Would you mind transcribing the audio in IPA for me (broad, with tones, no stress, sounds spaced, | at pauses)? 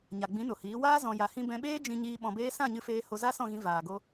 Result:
ɲ a˨ ɡ͡b ĩ˨˦ n o˨ h iː˨˦ w aː˦ z ɔ̃˧ j a˧ h ĩ˦ b ɛ̃˧ ɓ eː˦ d͡ʒ ĩ˧ ɲ iː˧ ɓ ɔ̃˧ b eː˦ s ã˦˨ ɲ ɨ˧ f eː˧ h o˧ z a˦ s ɔ̃˦˨ ɣ ĩ˧ v aː˨ ɡ o˧